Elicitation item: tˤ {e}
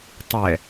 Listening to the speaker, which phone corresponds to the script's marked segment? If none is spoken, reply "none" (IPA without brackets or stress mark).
ɛ